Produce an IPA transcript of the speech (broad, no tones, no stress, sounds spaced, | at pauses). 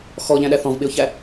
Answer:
x ɔ ʎ æ̃ ɗ æ θ ɔ̃ v ɓ ɪ ʊ̯ ç æ